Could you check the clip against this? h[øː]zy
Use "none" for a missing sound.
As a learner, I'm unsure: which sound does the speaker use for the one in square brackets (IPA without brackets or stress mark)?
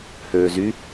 øː